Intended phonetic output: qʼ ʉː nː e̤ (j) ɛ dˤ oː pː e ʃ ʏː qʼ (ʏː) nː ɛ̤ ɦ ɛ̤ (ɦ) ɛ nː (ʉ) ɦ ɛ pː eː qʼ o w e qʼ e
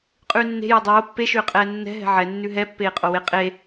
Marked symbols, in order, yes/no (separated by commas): yes, no, no, yes